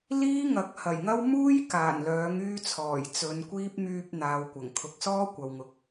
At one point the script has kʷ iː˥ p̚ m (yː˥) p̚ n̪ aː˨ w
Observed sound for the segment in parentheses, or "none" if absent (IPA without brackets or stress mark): yː˧